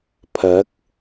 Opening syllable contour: rising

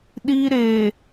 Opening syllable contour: high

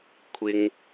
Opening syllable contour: low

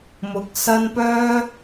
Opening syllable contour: rising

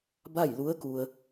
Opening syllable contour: falling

